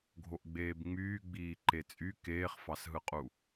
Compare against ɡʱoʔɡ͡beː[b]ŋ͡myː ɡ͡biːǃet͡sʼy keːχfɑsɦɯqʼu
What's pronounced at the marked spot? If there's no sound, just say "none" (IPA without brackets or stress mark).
b